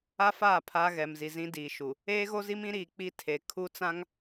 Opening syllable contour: high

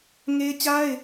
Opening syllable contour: high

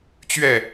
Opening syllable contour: falling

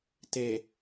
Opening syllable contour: low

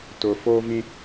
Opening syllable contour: low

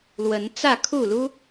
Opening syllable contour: rising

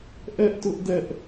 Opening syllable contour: high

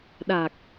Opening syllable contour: low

